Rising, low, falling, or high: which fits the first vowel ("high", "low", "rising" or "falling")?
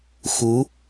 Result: rising